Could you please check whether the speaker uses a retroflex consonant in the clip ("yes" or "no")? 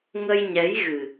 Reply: no